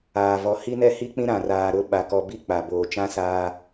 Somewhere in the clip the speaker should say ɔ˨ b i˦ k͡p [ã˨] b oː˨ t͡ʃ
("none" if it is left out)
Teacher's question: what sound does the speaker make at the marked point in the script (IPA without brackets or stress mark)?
a˨